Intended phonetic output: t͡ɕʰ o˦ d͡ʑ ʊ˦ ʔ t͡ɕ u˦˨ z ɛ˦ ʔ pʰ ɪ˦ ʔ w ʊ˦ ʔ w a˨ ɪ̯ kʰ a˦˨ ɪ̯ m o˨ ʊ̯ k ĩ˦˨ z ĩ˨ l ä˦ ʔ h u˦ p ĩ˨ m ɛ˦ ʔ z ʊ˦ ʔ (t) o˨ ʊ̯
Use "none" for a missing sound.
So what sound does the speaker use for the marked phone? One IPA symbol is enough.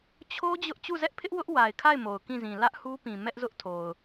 tʰ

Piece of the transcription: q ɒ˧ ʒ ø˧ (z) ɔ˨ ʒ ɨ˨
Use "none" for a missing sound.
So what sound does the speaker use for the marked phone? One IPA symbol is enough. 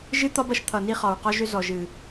z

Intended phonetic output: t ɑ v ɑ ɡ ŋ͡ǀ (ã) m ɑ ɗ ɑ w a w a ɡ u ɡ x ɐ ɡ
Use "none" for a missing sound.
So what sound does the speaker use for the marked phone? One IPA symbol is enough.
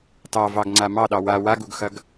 a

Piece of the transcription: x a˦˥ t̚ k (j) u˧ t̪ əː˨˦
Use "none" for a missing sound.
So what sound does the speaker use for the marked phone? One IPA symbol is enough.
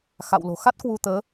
w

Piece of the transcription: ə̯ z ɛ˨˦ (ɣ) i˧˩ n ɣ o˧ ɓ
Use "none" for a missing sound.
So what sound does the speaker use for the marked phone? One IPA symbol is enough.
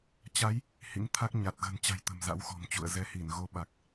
h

